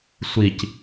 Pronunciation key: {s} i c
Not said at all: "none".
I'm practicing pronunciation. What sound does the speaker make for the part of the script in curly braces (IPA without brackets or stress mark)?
sʷ